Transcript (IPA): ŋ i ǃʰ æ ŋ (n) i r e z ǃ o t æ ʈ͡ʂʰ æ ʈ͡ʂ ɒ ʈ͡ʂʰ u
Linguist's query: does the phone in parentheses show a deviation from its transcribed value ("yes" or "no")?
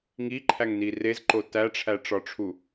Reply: no